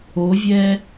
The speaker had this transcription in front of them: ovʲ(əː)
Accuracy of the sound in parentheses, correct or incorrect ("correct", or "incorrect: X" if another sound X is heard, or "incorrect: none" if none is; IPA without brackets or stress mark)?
incorrect: ɛː